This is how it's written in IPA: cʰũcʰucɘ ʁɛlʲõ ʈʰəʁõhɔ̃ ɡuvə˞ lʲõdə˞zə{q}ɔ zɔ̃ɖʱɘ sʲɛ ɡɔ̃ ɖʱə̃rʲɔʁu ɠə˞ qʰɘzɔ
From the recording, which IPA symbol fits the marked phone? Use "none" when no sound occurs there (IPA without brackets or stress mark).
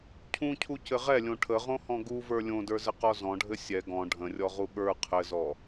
q